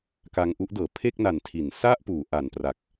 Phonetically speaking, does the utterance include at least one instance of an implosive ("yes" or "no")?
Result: no